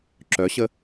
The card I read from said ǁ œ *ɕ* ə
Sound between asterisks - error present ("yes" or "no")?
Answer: no